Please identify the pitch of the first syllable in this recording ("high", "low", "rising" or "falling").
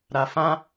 low